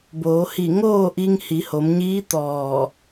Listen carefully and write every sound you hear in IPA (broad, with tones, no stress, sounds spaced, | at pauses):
b oː˩˧ h i˧˩ ŋ oː˥˨ ʔ i˧ ŋ h i˩˧ h o˩˧ m ɲ iː˧˥ t̪ ɔː˧˩